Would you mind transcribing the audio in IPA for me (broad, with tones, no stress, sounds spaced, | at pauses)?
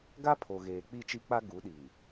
ɡ a˦ pʰ o˨ ɣ eː˨ k͡p i˦˨ t͡ʃ i˦ k͡p a˦ ɡ u˨˦ ɗ iː˨